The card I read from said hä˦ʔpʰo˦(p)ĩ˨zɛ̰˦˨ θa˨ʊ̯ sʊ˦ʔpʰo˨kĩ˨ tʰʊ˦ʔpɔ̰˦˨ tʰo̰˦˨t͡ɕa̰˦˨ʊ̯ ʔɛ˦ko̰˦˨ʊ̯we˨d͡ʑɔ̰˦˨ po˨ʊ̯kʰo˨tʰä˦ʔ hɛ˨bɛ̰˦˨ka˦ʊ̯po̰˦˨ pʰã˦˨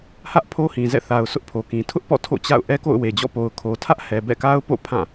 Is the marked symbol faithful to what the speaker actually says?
no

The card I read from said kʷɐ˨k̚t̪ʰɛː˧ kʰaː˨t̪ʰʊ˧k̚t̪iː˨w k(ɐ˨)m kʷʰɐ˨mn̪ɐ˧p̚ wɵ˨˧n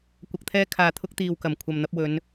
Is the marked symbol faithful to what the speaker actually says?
no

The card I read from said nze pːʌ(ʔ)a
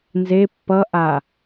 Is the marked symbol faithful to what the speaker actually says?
yes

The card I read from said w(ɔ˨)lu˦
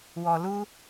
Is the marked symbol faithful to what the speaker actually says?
yes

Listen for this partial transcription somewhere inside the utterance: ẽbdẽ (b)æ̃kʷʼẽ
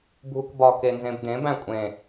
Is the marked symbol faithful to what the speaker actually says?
yes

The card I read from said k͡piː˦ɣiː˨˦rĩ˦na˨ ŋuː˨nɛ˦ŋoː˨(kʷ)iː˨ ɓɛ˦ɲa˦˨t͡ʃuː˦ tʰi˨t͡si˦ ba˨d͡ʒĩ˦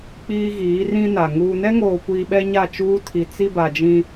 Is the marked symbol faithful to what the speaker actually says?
yes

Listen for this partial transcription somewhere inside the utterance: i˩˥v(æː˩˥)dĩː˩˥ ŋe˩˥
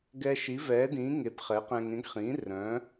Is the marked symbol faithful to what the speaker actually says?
no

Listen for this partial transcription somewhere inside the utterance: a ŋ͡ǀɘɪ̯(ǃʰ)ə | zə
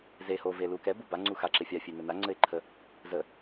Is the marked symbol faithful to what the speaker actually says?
yes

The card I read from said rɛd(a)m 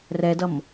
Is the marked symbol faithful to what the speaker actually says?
no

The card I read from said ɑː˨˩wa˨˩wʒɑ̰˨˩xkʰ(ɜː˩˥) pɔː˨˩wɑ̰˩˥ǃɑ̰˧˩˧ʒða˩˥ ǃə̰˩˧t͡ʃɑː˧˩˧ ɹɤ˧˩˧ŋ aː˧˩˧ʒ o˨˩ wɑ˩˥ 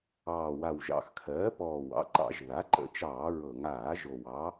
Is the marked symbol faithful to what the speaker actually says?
yes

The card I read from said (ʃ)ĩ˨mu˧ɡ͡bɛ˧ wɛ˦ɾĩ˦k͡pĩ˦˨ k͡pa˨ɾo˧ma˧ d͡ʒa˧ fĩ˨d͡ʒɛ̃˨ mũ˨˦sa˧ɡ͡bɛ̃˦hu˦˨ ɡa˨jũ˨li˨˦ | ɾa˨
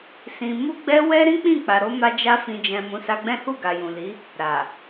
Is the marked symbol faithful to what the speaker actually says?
no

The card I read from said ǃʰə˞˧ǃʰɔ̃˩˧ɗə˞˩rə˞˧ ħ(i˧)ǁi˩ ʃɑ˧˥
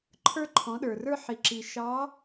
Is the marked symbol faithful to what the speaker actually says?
no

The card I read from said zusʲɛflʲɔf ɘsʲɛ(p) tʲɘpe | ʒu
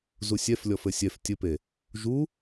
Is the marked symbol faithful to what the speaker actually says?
no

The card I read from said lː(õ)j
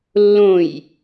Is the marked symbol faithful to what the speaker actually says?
yes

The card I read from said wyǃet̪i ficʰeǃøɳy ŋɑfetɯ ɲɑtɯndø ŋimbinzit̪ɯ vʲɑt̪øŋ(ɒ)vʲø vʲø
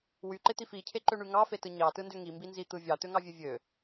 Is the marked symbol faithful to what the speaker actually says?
no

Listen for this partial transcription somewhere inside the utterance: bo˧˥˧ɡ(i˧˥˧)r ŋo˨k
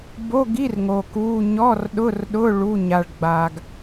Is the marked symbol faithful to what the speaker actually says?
yes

